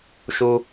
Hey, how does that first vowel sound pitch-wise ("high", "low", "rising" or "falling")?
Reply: high